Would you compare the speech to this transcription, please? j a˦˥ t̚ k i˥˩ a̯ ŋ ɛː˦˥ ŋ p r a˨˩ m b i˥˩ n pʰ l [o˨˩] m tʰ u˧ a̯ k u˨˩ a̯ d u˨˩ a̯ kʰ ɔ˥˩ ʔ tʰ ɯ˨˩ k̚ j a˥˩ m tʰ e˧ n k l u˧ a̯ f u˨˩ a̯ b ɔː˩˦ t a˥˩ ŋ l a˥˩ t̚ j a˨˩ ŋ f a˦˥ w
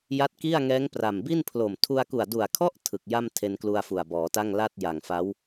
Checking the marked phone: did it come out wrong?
no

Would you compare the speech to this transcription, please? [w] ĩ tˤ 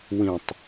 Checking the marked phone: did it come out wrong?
no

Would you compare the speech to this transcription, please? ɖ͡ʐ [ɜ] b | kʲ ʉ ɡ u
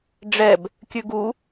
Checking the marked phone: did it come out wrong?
yes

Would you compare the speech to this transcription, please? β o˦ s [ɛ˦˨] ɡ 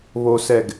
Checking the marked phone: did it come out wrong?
no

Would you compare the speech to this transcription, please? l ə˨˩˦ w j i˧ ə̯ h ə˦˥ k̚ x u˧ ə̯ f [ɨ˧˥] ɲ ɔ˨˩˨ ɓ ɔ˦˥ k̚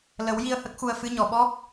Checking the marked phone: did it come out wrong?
no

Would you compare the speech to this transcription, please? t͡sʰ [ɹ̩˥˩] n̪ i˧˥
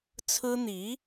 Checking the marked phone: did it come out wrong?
yes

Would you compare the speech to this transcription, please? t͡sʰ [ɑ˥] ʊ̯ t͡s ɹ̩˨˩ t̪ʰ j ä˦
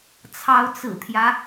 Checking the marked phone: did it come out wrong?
yes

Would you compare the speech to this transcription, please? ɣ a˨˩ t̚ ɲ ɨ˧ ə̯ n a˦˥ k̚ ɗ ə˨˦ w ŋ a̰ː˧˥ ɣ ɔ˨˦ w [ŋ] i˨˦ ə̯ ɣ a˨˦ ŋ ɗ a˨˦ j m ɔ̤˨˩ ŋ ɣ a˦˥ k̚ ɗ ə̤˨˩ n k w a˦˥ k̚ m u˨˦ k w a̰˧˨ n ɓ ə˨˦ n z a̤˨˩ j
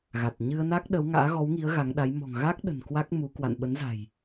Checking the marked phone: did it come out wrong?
no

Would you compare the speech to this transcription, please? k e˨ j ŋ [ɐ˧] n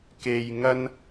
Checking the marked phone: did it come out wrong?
no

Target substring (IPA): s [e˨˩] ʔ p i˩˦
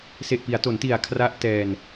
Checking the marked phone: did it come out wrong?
no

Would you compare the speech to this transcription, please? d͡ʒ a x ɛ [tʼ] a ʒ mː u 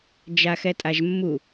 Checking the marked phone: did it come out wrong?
no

